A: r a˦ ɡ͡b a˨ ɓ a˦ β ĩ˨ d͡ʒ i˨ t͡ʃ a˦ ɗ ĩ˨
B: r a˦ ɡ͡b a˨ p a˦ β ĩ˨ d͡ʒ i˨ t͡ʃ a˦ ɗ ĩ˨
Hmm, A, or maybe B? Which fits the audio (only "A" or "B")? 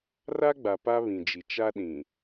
B